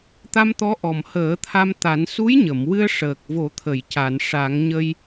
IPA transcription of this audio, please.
t̪a˧mt̪ɔ˧˥ʔɔ˨˩mhəː˨˩˦ t̪ʰa˧mt̪a˨˩˦n su˧˥jɲə˨˩˨m wɨ˧ə̯ʂəː˨˩k̚vo˨˩˦t̪ʰə˨˩˨j ca˨˩˨nʂa˨˩˦ŋɲə˧j

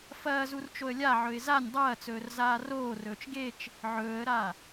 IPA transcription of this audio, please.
fɐːzur t͡ʃoə̯lʲaʕɵɪ̯ zanʲ dˤɐːt͡sɵːr zaːroːrɵːt͡ʃ ɡet͡ʃ | ʕɵːə̯ɾa

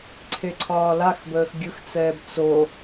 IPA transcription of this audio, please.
ǀʰeǀʰɒːlaxbəːx ɡʲɯxt͡sɛːb t͡so

